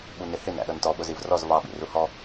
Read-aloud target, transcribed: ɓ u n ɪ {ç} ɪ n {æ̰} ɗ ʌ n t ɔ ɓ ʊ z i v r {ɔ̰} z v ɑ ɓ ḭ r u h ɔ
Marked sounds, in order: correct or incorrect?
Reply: incorrect: h, correct, incorrect: ɔ

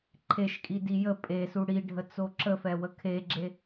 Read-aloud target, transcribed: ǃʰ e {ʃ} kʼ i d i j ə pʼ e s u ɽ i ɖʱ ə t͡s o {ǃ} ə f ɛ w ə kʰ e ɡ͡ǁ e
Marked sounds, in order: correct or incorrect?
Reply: correct, incorrect: ǁ

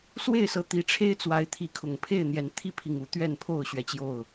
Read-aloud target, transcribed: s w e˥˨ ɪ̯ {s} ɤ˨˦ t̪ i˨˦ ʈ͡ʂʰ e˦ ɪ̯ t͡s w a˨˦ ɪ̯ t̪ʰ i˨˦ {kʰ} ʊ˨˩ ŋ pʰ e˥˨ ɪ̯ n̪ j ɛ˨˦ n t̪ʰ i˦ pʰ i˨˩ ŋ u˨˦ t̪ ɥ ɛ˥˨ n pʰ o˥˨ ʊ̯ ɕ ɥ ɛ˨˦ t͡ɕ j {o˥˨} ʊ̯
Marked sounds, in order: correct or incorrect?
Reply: correct, correct, correct

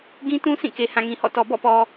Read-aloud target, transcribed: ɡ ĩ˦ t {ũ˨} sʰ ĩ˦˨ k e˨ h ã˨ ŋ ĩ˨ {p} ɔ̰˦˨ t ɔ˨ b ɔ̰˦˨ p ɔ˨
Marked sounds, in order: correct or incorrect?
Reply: incorrect: ũ˦, incorrect: h

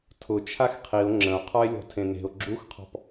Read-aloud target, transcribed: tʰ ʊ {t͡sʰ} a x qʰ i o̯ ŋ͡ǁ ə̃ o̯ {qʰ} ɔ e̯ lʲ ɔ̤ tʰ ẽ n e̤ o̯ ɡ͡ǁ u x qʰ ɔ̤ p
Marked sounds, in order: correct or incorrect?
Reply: incorrect: t͡ʃʰ, correct

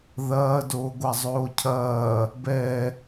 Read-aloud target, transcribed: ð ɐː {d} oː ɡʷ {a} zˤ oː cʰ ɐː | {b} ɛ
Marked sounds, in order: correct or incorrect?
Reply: correct, correct, correct

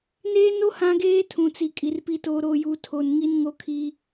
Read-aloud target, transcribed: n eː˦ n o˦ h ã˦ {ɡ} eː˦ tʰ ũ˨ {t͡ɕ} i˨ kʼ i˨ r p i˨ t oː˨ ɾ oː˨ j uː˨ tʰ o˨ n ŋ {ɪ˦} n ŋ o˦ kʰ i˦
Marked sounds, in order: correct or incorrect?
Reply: correct, incorrect: t͡s, incorrect: i˦

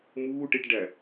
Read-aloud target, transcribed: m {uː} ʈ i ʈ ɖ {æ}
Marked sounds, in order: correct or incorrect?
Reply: correct, correct

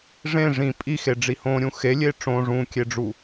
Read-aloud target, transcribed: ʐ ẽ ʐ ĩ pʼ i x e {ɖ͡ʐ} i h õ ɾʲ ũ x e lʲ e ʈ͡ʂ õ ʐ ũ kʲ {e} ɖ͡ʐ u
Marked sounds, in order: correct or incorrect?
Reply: correct, correct

